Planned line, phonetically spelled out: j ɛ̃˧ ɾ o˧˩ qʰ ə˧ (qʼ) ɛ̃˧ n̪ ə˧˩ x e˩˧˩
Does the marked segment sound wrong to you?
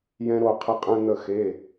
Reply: no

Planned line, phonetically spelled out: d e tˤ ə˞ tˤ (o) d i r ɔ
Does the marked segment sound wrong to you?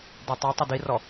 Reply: no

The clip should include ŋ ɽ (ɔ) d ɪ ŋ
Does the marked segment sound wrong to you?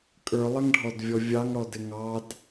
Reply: no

